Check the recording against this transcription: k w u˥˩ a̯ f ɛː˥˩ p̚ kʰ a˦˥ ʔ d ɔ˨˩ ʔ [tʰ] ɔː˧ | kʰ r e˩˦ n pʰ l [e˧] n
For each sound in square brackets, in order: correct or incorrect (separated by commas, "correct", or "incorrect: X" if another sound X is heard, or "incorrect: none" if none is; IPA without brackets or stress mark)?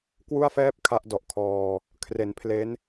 incorrect: kʰ, incorrect: e˦˥